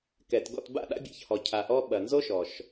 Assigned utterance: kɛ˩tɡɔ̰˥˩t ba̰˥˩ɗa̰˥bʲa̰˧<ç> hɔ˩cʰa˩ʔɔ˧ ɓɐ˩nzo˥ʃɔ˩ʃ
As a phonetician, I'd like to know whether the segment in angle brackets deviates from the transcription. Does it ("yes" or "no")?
no